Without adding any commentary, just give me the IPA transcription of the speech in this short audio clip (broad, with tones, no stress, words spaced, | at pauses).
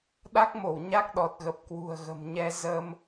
ɗa˦˥k̚mo˧˩w ɲa˦˥k̚ɗɔ˨˩t̚ɣə˨˩p̚ kwṳ˨˩ə̯ɣə̤˨˩mɲɛ˧ zə˧m